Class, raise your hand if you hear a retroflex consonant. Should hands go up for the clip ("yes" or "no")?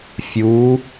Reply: no